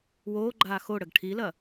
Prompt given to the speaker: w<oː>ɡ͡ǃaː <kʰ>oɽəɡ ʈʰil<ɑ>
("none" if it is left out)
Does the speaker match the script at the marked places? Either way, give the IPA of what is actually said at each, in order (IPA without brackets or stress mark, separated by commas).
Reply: oː, x, ɐ